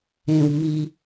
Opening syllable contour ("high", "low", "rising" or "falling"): low